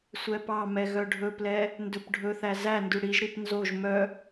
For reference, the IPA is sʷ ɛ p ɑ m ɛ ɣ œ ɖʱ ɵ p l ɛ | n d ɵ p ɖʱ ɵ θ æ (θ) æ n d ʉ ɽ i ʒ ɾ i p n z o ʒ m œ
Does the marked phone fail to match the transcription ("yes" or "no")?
yes